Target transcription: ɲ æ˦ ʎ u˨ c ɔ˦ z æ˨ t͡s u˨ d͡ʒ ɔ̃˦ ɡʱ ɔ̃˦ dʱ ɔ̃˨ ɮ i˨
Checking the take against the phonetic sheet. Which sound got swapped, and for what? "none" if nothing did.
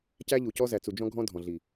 ɲ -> c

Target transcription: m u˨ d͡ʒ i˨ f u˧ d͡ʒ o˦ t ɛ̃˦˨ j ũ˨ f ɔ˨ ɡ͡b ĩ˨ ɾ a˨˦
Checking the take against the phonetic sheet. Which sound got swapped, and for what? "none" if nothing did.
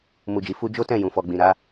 none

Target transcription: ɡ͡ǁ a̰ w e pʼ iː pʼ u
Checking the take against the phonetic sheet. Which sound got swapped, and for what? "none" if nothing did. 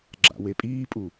none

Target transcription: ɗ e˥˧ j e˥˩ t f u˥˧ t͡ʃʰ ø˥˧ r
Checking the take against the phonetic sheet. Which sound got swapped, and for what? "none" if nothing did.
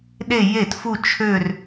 none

